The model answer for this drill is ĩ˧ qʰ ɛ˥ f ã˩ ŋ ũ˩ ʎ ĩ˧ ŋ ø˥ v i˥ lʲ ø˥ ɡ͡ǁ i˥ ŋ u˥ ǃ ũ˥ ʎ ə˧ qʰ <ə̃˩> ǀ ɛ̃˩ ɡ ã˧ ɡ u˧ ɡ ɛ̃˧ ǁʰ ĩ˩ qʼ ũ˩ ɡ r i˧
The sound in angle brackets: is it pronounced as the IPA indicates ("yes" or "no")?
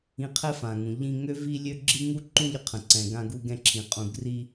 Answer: yes